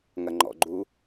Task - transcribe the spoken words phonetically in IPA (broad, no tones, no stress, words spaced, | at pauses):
ŋɐŋ͡ǃɔ̰ɡ͡ǃu